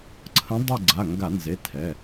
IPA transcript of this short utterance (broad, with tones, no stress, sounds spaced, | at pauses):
ǀʰ ə̃˧˥ dˤ ɛ˦˨ ɡ͡ǀ a˩˧˩ ŋ ɡ a˧˩˧ n z e˩˧˩ tʰ ɛ˩˧˩